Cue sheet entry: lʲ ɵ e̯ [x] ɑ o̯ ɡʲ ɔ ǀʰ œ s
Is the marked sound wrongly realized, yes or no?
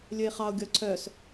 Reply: yes